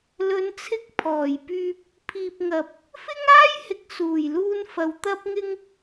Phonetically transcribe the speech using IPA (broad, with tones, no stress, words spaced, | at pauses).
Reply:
lɵ˨˧nt͡sʰɪ˧k̚ pʰɔː˨˩jpyː˧p̚ | pʰiː˨p̚ŋɐ˨p̚ | fɪ˥ŋaː˥jhɪ˨k̚ suː˨˩jluː˧nfɐ˨˧w t̪ɐ˧p̚ŋɪ˧ŋ